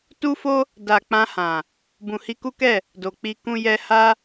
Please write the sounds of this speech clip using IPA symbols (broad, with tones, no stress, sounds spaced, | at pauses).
t u˦ f o˦ | d a˨ k͡p ã˧ h ã˨ | b ũ˨ h i˧ k u˦ k ɛ˦˨ | d o˨ k͡p i˧ k ũ˧ j ɛ˧ h a˦